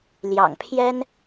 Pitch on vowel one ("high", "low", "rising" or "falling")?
low